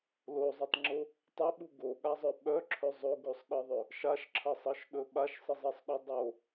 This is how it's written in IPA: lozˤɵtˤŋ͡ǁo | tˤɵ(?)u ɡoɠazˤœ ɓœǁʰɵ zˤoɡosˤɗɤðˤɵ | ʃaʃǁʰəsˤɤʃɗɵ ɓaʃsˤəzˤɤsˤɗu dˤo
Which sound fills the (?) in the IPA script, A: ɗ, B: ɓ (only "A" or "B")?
B